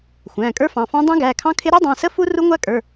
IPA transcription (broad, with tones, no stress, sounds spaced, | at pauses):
xʷ æ̃ː˩˧˩ kʼ ə˞˦˥ f ɑ̃˩˧˩ f ɑ̃˦˥ dˤ ɛ̃˦˥ ɡ æː˩˧˩ kʰ ɑ̃˦˥ kʰ ɪ˦˥ ɾ ɛ˦˥ dˤ ɑ̃˩˧˩ s ə˦˥ f u˦˥ r u˦˥ ŋʷ æ˦˥ kʼ ə˞˩˧˩